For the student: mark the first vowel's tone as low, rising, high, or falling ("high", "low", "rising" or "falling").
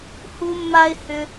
high